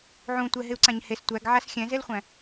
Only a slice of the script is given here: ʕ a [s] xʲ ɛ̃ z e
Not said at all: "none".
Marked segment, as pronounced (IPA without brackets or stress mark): s